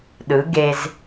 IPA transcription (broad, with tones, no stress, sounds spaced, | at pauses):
ɗ ɯ˩˥ ɡ e˧ z